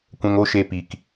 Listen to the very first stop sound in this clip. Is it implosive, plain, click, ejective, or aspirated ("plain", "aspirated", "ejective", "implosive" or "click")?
plain